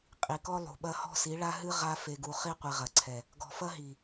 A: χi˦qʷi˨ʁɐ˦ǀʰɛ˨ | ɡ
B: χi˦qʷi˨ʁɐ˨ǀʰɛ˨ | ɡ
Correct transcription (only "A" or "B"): B